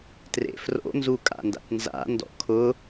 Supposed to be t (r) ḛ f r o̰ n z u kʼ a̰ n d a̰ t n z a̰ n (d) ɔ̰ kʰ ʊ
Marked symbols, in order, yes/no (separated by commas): yes, yes